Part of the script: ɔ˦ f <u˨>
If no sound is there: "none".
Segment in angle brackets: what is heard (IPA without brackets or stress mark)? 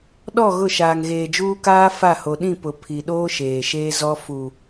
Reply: u˨